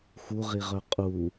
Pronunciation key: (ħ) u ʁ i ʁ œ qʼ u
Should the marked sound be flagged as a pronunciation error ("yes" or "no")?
yes